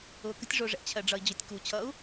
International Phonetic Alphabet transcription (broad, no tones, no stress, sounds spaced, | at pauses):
ʊː k ə̤ tʲ ʐ ʊː ʐ ɛ̰ t͡ɕʰ ɜ ɖ͡ʐ ʌ i̯ d͡ʑ ʊ tʲ k u t͡ɕʰ ʌ u̯